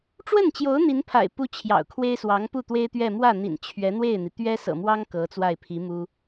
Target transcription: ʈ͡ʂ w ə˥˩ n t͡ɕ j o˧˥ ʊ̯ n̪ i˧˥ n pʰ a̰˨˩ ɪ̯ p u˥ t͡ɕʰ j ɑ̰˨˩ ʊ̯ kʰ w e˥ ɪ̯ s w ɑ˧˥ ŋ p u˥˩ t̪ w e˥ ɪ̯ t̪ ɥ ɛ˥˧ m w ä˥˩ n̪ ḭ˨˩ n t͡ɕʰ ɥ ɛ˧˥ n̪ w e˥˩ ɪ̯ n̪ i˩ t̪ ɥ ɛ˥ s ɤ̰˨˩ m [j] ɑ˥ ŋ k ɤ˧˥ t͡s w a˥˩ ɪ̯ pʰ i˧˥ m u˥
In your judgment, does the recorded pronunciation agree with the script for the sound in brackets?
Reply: no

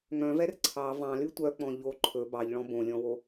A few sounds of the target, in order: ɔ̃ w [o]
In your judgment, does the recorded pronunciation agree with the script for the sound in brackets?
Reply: yes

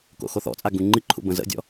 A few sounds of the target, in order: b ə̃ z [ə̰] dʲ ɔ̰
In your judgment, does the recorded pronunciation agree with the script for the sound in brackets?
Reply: yes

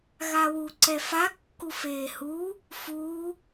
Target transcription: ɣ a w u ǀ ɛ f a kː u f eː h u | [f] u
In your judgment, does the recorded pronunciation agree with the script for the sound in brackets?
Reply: yes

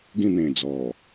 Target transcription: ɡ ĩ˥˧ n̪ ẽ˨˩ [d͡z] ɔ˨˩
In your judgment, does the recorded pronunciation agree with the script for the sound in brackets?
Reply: yes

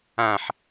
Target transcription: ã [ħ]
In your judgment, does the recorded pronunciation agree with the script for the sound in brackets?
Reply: yes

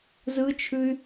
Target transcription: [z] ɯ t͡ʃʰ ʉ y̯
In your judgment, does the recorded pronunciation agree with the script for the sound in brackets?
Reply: yes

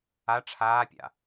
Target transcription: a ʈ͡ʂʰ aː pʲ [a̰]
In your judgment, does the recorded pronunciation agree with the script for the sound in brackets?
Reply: yes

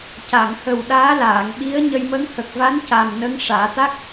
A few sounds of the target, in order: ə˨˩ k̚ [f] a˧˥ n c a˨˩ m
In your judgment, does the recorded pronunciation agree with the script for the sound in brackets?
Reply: no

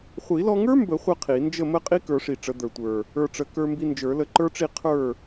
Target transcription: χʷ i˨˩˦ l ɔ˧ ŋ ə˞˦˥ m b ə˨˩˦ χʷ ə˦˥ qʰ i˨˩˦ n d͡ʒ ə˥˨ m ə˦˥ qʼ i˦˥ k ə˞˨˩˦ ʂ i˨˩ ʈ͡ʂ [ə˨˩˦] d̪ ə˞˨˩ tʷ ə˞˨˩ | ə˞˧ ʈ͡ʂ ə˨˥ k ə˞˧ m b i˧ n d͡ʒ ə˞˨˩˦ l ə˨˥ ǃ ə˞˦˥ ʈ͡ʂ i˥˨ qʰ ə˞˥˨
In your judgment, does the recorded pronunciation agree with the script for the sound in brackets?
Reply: yes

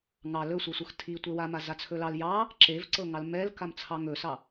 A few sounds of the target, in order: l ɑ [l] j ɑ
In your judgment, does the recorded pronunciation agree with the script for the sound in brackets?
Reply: yes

